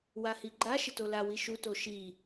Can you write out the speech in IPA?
w a h i ɡ͡ǃ a ʃ ɪ t o l a w i ʃ u t o ʃ i

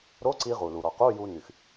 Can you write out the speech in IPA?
ɾ o˧˥˧ ǀ i˧ ʁ u˩ l u˩ ɾ ɔ˩ q u˧˥˧ j u˧ n y˩ x

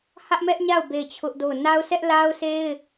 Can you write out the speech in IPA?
h ä˦ ʔ m ɛ˦ ʔ ɲ a˦˨ ʊ̯ b e˦˨ ɪ̯ t͡ɕʰ ʊ˦ ʔ d o˦˨ ʊ̯ n a˦ ʊ̯ s ɛ˦ ʔ l a˦ ʊ̯ sʰ e˦ ɪ̯

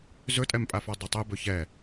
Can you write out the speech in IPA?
z ɵ tʼ ɛ m pʼ a f ɔ dˤ a tˤ e b ɵ ç ɛ

